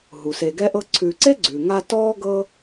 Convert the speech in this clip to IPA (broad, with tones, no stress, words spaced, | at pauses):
ɦu˩se˨ɡɛ˥ʔɤ˥ ǀʰʉː˨ǀe˥ɡ͡ǀʉː˩ ŋa˦ tɔː˥ ɡɤ˦